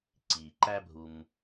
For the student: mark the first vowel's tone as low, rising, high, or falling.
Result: low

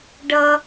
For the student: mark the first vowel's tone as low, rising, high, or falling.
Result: high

